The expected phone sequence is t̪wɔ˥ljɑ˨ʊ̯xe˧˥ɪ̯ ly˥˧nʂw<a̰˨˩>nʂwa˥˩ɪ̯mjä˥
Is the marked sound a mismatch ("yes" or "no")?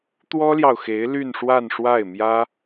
yes